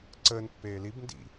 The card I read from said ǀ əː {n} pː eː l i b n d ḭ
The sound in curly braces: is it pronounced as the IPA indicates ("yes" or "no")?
yes